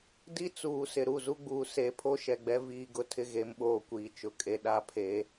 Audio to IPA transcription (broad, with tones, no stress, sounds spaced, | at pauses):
d i˦ t͡s uː˨ s ɪ˨ ɾ u˦˨ z u˦ ɡ͡b uː˨ s e˨˦ pʰ o˦ ʃ ɛ˨ ɡ͡b ɛ˦ v iː˦ ɡ ʊ˦ tʰ ɪ˦ ɣ e˨˦ m ɓ oː˦ kʷ iː˨ t͡ʃ ʊ˨ kʼ e˦ ɗ a˦ pʰ e˨˦